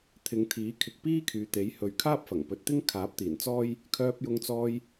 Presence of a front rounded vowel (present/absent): present